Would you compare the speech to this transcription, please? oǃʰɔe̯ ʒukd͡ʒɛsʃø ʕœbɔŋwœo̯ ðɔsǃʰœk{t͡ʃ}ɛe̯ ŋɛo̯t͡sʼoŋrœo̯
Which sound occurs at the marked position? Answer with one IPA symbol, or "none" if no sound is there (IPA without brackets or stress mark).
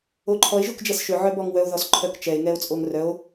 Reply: t͡ʃ